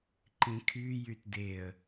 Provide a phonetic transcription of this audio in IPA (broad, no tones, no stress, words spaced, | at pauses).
ǃĩkʰy jytdeə̯